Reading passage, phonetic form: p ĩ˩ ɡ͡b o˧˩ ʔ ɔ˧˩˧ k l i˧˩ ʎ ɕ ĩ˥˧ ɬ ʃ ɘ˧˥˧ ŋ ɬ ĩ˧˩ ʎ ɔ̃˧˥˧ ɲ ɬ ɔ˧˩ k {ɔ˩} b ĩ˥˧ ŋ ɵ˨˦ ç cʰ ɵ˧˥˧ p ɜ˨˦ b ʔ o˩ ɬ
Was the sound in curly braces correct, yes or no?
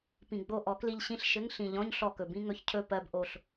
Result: no